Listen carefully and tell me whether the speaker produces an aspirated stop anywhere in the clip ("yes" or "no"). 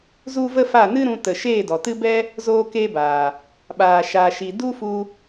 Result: no